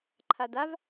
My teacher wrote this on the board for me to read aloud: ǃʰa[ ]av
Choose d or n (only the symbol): d